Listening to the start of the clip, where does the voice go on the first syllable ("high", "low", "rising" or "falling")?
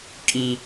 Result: high